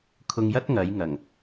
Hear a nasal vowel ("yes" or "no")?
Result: no